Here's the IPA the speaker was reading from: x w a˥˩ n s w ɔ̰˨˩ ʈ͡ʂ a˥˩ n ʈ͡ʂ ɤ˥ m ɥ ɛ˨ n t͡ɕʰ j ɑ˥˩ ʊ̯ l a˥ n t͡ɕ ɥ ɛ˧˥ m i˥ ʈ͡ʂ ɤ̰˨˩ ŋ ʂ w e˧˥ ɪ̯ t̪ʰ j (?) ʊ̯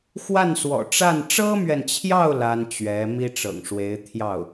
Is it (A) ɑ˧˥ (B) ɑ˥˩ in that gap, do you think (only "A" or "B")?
B